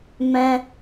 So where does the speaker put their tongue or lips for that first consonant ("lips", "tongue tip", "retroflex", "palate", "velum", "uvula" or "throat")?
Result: lips